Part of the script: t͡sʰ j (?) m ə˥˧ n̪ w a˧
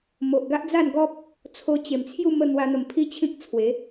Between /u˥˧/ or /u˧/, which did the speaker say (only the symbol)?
u˥˧